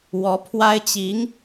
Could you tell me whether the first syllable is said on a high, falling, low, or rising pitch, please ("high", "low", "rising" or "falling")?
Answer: rising